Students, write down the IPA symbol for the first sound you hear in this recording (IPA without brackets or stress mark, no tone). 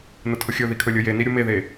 n